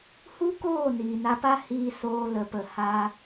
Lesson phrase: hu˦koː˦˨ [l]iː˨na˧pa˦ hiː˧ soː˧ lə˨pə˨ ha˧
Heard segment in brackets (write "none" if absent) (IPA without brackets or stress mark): n